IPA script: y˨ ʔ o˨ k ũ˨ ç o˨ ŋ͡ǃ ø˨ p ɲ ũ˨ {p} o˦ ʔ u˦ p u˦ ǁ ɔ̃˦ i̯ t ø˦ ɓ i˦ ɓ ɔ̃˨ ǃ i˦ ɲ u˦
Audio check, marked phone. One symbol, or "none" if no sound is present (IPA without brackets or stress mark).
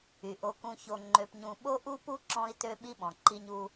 ɓ